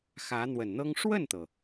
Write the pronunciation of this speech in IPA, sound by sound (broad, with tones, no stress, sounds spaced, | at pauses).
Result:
x ä˧˥ n̪ w ə˨˩ n n̪ ɤ˥ ŋ ʂ w ə˥˩ n t̪ ɤ˩